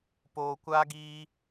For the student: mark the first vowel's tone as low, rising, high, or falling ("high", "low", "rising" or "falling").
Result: low